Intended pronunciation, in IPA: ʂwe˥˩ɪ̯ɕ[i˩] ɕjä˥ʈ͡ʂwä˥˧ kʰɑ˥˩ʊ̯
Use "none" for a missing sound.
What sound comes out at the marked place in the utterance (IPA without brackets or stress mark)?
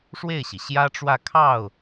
i˩